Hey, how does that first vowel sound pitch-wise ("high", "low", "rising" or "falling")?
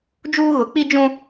high